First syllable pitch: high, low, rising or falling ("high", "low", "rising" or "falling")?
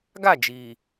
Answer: falling